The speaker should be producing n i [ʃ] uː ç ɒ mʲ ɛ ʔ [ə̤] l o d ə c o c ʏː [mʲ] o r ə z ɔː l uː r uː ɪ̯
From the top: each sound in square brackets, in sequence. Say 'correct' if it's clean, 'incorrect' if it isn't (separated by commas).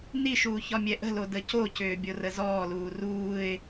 correct, correct, incorrect